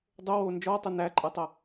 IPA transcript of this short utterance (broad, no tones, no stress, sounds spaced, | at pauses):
dˤ o w oː n d͡ʒ ɔ tˤ o n æ ǃʼ æ tˤ ɐ